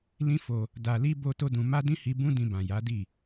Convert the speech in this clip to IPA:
l ĩ˦ f o˧ | d a˧ l i˦ b o˧ t o˦ d ũ˧ m a˦ d ĩ˦ h i˧ b ũ˦ d ĩ˧ b ã˨ j a˨˦ d i˦˨

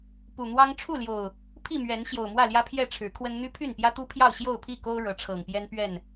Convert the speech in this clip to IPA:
p u˨˩ n̪ w ɑ˦ ŋ ʈ͡ʂʰ u˥˨ l j o˨˩ ʊ̯ | pʰ i˥˨ m ɥ ɛ˨˦ n ɕ j o˨˩ ʊ̯ m w ä˥˨ l j ä˦ pʰ j ɛ˥˨ ʈ͡ʂʰ ɻ̩˨˦ kʰ w ə˦ n n̪ y˦ pʰ y˥˨ n p j ä˦ t̪ u˦ pʰ j ɑ˥˨ ʊ̯ ɕ j o˥˨ ʊ̯ pʰ i˥˨ k o˦ ʊ̯ ɻ ɤ˨˦ ʈ͡ʂʰ ɤ˨˩ ŋ p j ɛ˦ n p ɥ ɛ˥˨ n

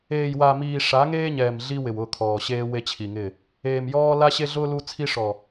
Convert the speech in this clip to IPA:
eː˨ j w a˨ m iː˨ ʂ a˨˦ ŋ eː˦ ɲ ɛː˨ m ɮ i˦ w ɪ˨ w ʊ˦˨ kʰ ɔː˨ ɕ eː˦ w e˦ t͡ɕʰ i˨ ŋ ɪ˦˨ | eː˨ m j ɔː˦ l a˦ ɕ e˦ ɮ ʊː˦ l u˦ t͡sʰ i˦ ʂ ɔ˨

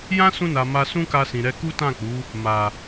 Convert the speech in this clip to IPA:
j ã˦ s ũ˧ n a˨ m a˧ s ũ˦ k a˧ s ĩ˨ ɾ ɛ˧ k u˦ t ã˦˨ k͡p u˨˦ | m a˨

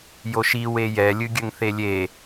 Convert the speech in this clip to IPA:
j o ʃ i w e j ɛ lʲ ɨ ɡʲ ɘ ŋ θ e lʲ e

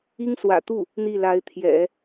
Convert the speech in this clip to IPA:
i˥ ŋ s w ä̰˨˩ t̪ u˥˩ | n̪ i˥˩ l a˧˥ ɪ̯ t̪ʰ j ɛ̰˨˩˦

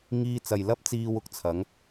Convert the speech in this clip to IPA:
ŋ iː˧ t͡s ɐ˨ j l ɐ˥ p̚ t͡s iː˧ w ʊ˨ k̚ t͡sʰ ɐ˨˥ ŋ

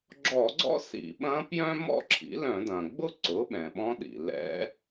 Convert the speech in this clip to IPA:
ɡ͡ǁ ɔ˧˩˧ ɡ͡ǀ ɔ̰˥ s ḭ˧˩˧ ɓ ɐ̃˧˥ p j œ̃˥ m ɔ̰˥ ǁʰ ḭ˩˥ l œ̃˧˩˧ d ɐ̃˩ ɡ͡b ʊ˥ ǀ ʊ˩˥ ɓ ɛ̃˩ ɓ ɔ̃˧˥ ɗ ḭ˩ l ɛ̰˧˥

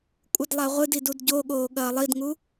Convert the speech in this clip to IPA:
kʷʼ ɨ d lˠ a ʁʷ ɨ d i d u d ɟ o ɠ oː ɠ ɐː lˠ i d ŋ u

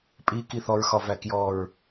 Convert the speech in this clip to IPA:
pʼ i k i θ ɔ ɹ x ɒ v æ k j ɔ ɹ

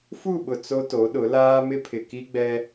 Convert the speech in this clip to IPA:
f u˦˨ ɓ ʊ˨ t͡s o˦ t o˨˦ ɗ ʊ˨˦ l aː˦ m ɪ˦ pʰ ɪ˨ k i˦ ɡ͡b ɛ˦

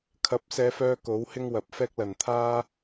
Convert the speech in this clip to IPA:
kʰ ɐ˨˥ p̚ s ɛː˨˧ f œː˧ k o˨˥ w h ɪ˥ ŋ w ɐ˨ p̚ f ɛː˥ k̚ l ɐ˨˩ n t̪ʰ aː˥

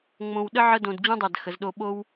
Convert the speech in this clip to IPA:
ŋ͡m õ˧ w ɗ ə˥ ʕ ə˥ d õ˧ d d͡ʑ ũ˥ dˤ ɛ˧˩ d x ə˩˧ z ɗ o˧ ɓ o˥ w

